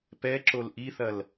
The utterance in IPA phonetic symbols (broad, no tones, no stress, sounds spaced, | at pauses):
p ɛ ǁ o l ʔ i θ ɐ l